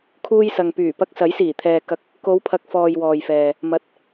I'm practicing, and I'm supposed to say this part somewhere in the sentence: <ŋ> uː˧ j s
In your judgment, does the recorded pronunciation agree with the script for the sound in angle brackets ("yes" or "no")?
no